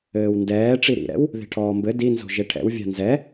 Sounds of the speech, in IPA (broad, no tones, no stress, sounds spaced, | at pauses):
ɘː w n d ɛː ʈ͡ʂ i ɾ ḭ ɾ ɛ̰ w | ð e̤ ʈʰ ɔː m b ɘ d i n z o̤ ʒ e ʈʰ ɛ̰ w vʲ a̤ n z ɛ